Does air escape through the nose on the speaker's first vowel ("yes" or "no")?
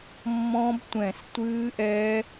yes